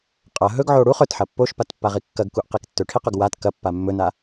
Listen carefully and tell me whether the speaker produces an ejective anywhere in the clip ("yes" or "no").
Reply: yes